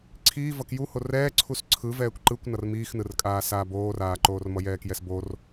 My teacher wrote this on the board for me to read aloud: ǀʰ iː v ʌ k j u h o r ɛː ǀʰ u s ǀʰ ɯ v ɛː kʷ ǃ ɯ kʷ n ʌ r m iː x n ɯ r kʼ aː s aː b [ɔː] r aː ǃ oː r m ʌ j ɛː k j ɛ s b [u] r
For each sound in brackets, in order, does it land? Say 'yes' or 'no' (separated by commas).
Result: no, no